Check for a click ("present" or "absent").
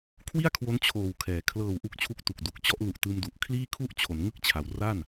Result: absent